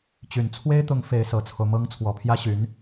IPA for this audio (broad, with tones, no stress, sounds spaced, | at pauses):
t͡ɕ y˨˩ n t͡sʰ w e˥ ɪ̯ t̪ ʊ˧˥ ŋ f e˧˥ ɪ̯ s ɤ˨˩ t͡sʰ o˦ ʊ̯ m ɤ˥ ŋ t͡sʰ w ɔ˨˩ pʰ j ä˥ ɕ y˧˥ n